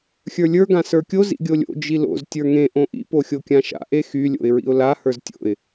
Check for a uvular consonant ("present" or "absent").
absent